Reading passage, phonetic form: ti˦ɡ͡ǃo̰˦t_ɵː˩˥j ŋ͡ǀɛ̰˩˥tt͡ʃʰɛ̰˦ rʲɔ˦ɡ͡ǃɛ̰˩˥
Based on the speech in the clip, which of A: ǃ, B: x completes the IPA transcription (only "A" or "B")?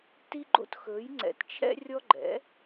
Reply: B